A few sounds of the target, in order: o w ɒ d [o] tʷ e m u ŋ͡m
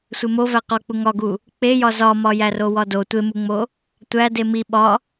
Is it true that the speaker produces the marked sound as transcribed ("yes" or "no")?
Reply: yes